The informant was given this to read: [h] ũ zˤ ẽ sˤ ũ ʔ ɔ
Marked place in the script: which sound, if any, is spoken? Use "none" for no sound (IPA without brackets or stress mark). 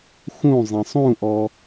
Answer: x